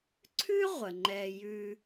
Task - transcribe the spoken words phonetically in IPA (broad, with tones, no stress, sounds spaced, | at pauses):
ǀʰ ʉ˥ ʁʷ ə˩ ŋ͡ǃ ɛ˨ j ʉ˨